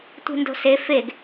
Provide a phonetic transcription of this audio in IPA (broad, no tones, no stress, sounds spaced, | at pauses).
tʷ i̤ n d o̤ s e f e ɡ